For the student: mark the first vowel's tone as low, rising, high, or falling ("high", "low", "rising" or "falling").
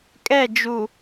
falling